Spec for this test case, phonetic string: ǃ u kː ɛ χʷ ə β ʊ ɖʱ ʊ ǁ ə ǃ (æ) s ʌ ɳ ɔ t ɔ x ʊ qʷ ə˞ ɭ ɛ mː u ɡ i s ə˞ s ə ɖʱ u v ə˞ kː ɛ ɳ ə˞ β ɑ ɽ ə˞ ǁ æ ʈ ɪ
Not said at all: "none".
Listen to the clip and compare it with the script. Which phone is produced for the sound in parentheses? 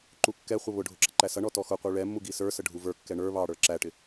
æ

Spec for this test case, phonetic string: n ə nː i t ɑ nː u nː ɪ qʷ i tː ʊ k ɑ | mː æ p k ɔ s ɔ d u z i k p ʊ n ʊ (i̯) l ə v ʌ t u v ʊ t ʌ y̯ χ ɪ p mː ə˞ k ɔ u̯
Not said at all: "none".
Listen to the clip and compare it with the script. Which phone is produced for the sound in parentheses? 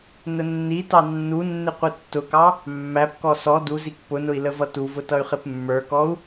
i̯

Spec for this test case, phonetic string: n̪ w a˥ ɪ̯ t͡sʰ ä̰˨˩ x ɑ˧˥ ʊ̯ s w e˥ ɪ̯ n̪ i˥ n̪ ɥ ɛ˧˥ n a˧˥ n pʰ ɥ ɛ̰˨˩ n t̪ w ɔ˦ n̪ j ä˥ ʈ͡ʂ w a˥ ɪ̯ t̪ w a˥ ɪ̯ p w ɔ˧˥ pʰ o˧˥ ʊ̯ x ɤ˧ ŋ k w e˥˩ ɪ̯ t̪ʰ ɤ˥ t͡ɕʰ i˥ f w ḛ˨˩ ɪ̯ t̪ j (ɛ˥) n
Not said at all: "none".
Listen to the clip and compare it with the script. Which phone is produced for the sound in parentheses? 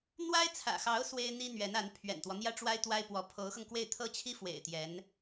ɛ˧˥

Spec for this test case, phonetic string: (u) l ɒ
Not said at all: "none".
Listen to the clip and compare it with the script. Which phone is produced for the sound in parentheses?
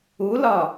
u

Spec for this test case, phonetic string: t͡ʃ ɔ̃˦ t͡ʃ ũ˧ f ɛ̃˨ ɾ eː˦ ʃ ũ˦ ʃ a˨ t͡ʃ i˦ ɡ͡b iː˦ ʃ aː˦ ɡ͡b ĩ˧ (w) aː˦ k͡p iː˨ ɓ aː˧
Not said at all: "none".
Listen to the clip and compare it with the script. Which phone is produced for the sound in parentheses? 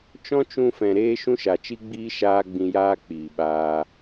j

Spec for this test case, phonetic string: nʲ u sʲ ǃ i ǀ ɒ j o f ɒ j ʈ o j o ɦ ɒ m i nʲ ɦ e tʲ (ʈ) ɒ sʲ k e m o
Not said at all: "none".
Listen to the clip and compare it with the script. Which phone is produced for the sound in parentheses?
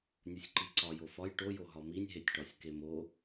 ʈ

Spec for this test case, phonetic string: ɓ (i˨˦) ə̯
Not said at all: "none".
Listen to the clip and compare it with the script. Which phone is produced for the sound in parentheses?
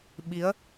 i˨˦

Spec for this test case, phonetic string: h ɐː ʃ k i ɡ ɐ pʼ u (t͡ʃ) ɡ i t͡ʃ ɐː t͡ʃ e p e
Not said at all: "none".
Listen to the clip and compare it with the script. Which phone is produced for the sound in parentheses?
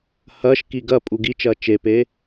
none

